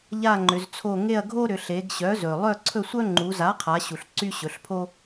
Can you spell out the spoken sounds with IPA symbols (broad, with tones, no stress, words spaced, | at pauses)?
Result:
ʎa˦˨ŋ͡ǃʏ˩˧zt͡sʰo˦˨ ŋe˦˨ɐ̯ɡʱo˦ɾʏ˩˧ ɬe˩˧ɡ ɕœ˩˥zɵ˩ lˠœ˦˨ǀʰɵ˦˨sʷœ˦ ŋ͡ǃu˩˧za˩˥qʰa˩˧ ɕu˩ɬǀy˦ɕɵ˩˧ɬpʰo˦